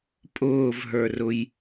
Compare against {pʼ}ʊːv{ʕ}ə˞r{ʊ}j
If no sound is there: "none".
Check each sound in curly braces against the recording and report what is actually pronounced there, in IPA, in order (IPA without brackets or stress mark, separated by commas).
pʼ, ɦ, ʊ